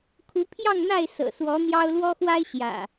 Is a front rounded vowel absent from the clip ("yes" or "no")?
yes